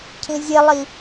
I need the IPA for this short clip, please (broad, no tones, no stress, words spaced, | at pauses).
cʰĩzʲelˠi